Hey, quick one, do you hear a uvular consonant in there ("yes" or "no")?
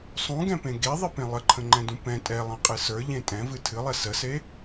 yes